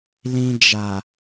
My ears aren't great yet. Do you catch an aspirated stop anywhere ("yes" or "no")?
no